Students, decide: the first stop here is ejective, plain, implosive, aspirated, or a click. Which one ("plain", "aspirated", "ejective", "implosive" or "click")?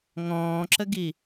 click